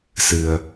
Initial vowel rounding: unrounded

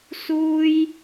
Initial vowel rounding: rounded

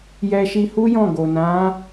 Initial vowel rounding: unrounded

